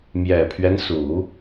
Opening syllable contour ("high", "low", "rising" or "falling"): low